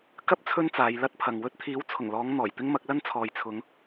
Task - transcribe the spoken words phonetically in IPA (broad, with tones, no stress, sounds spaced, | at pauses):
k ɐ˥ p̚ t͡sʰ ɵ˥ n t͡s aː˨˧ j l ɐ˥ t̚ pʰ ɐ˨ ŋ w ɵ˧ t̚ t̪ʰ iː˨˥ w t͡sʰ ʊ˨˩ ŋ l ɔː˨˧ ŋ n̪ ɔː˨˩ j t̪ ɪ˥ ŋ m ɐ˨˥ k̚ l ɐ˥ n t͡sʰ ɔː˨ j t͡sʰ ʊ˨˧ ŋ